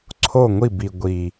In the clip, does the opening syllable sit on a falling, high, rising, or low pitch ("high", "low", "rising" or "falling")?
falling